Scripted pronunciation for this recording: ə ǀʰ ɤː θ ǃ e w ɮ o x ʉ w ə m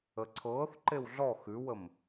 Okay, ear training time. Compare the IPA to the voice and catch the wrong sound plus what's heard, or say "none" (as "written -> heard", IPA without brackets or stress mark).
o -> ɔ